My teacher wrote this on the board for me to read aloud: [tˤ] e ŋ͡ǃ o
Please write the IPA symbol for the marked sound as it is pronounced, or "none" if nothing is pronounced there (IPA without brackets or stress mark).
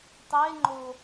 tˤ